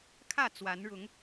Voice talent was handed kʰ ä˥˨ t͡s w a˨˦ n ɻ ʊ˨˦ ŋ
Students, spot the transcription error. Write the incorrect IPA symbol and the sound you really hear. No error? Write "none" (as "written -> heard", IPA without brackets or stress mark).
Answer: none